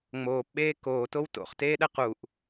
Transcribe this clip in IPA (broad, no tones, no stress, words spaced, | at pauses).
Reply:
ŋ͡moːpɓeː koːtow to̰χteːɗɛ quʔ